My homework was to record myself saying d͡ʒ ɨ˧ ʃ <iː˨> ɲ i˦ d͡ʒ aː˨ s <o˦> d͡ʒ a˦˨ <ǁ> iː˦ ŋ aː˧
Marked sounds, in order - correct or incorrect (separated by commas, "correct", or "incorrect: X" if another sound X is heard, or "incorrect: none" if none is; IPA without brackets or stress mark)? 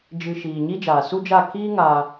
correct, incorrect: u˦, incorrect: k